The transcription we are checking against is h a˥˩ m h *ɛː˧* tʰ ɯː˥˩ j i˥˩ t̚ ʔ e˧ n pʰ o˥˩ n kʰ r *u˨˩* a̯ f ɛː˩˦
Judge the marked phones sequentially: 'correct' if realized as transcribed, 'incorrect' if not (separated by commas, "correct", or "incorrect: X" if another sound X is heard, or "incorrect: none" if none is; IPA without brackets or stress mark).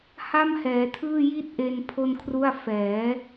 incorrect: ɛː˩˦, incorrect: u˥˩